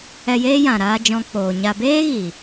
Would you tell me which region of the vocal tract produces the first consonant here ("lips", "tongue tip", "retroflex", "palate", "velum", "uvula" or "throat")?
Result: palate